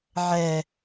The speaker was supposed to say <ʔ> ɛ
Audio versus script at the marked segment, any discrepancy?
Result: yes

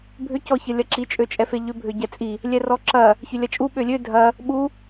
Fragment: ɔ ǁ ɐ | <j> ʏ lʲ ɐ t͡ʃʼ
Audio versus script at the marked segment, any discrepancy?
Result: yes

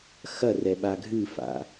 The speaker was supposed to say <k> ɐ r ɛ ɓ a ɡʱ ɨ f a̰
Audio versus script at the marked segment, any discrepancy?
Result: yes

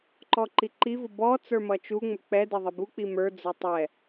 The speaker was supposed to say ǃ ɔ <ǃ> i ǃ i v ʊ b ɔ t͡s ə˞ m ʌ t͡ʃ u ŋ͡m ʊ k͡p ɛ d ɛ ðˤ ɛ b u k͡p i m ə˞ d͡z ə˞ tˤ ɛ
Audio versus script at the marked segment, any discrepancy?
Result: no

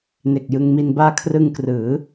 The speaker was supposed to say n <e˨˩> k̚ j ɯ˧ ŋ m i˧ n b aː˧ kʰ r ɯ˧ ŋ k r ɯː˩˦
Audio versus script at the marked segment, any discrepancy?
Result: no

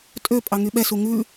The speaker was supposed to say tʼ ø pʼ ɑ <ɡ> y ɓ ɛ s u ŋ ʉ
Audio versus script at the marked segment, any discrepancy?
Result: yes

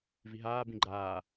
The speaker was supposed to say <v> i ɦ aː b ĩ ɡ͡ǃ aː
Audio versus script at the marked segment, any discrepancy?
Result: no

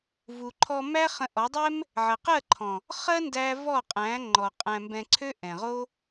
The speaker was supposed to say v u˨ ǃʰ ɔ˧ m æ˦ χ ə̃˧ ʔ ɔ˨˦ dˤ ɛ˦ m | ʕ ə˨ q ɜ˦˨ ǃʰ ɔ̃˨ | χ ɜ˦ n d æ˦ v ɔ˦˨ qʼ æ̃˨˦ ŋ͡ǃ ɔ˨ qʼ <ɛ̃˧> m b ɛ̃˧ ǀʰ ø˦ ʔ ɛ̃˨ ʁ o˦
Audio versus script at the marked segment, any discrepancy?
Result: yes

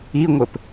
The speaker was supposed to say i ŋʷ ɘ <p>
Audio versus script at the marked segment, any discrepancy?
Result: no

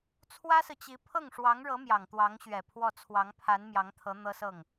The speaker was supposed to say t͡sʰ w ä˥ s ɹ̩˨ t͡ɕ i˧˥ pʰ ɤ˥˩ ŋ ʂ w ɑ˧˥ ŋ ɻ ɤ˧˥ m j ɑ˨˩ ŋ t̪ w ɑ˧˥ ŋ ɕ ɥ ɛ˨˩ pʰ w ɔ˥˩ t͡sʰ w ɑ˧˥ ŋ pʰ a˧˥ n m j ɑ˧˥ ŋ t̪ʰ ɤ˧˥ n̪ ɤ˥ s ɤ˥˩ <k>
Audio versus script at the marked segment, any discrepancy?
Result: yes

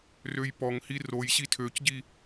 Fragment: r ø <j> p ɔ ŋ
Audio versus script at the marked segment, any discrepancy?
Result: no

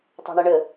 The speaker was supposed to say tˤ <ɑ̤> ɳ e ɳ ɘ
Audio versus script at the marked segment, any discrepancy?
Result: no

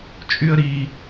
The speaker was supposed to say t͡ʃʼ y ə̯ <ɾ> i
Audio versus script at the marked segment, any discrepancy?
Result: no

